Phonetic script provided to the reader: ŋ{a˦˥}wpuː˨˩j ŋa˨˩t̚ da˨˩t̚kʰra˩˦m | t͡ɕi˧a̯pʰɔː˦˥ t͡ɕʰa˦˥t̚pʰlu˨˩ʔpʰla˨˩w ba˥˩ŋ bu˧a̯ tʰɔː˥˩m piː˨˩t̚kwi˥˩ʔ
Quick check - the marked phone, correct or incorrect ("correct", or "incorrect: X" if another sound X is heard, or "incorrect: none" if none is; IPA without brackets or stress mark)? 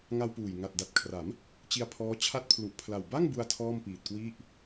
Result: incorrect: a˧